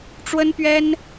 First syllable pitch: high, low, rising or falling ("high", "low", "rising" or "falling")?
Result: high